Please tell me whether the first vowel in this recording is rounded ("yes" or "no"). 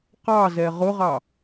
no